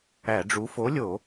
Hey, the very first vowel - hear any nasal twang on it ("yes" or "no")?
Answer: no